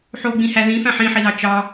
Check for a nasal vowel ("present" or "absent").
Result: present